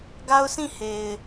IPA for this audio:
ɡ a˦ ʊ̯ s ĩ˦˨ h e˨ ɪ̯

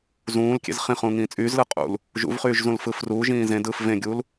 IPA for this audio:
z ũː l kʲ ḛ z χ ĩ χ ũː ŋ ĩː t͡sʼ yː z l ɯ qʼ ṵ l | ʒ ṵ v χ yː ʒ z ũ l f ɯː f r uː ʒ ĩː z ẽ d ɯː f v ẽ ɡʲ uː l

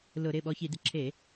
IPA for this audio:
l ʊ˧˩˧ ɾ ɪ˩˧˩ ɓ ɔ˧ ç i˧˩˧ d ɪ˧ ǁʰ e˧˩˧

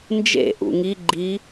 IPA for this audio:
n d͡ʒ ḛ ʔ ṵ ŋ i ɡ͡ǃ i

